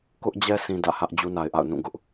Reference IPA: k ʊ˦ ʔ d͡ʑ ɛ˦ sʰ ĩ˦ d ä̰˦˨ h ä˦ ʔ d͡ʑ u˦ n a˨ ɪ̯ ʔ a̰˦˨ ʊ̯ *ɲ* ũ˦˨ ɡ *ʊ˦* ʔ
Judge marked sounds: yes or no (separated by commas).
no, yes